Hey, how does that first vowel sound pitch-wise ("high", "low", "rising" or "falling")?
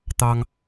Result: high